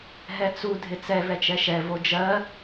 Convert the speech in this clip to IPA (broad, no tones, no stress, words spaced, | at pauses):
ɦɛt͡su dʱɪt͡sɛ vɛt͡ʃɛʃɛ vod͡ʒɜ